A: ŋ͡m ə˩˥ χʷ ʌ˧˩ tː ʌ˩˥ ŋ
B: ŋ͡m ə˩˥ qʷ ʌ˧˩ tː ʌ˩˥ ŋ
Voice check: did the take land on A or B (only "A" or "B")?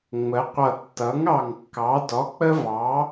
B